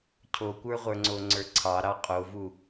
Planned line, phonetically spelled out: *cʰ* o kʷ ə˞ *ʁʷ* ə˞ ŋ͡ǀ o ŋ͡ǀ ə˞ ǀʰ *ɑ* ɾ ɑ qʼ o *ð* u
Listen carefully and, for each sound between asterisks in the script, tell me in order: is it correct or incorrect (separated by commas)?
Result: correct, correct, correct, incorrect